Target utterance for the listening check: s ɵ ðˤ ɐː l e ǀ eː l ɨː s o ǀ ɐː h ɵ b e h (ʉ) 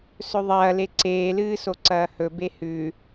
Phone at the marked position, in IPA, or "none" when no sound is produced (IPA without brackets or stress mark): ʉ